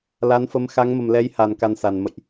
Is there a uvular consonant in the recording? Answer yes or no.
no